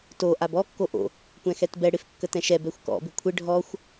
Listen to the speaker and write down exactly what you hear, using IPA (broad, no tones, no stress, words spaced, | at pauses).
to ʔabɔ kːoʔo̰ | kʷɛ̃xɛtbɛ ɽɪf kːətɛ̃ʃɛ bɛxʷkɔ̰ bɪkʷʰɪ ɖʱɔxʷ